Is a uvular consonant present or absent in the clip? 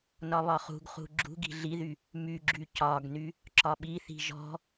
present